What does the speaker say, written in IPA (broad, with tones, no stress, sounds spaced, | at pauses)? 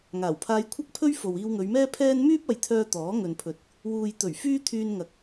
ŋ aː˨˩ w pʰ aː˧ j kʷʰ ɐ˥ k̚ pʰ ɵ˥ ɥ f o˨ w iː˧ w ŋ ɵ˨˧ ɥ m ɛː˥ pʰ ɛː˥ n m yː˥ p̚ ɐ˨ j t̪ʰ œː˧ t̪ ɔː˨˥ ŋ ɵ˨ n pʰ ɵ˨˥ t̚ | w uː˨ j t̪ ɵ˨˩ ɥ f yː˥ t̪ʰ yː˧ n ŋ ɐ˨˥ k̚